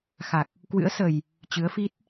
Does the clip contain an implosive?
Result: no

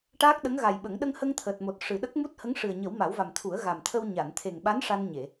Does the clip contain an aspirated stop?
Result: yes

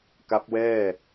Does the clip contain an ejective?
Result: no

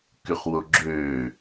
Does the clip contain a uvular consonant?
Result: yes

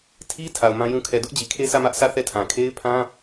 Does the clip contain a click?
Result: no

